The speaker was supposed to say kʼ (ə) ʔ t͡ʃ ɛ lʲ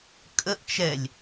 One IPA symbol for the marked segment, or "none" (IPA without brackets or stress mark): ə